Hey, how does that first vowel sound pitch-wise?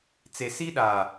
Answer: low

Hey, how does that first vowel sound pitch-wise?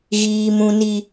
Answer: high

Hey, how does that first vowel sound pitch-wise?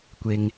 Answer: low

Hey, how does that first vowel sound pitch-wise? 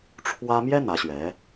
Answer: high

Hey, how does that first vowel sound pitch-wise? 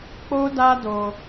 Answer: high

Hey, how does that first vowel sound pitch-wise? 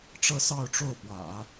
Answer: falling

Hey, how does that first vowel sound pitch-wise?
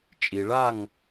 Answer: low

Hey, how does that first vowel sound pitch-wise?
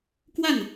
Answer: falling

